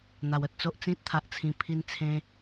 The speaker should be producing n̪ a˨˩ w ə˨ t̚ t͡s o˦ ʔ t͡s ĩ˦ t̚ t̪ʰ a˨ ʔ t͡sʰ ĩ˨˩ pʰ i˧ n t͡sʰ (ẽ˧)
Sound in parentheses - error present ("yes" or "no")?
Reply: no